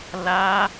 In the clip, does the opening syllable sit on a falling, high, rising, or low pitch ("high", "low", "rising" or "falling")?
high